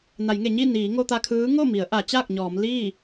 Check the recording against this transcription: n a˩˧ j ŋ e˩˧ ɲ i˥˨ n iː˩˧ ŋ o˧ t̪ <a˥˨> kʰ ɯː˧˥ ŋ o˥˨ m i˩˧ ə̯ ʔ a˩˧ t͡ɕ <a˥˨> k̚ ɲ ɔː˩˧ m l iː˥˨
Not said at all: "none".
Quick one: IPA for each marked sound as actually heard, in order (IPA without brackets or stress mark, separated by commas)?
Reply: a˧, a˥˨